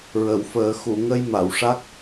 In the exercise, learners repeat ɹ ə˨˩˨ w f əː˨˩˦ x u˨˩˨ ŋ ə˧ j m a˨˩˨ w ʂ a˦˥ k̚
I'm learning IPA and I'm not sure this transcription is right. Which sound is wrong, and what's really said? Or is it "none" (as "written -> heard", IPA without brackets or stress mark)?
none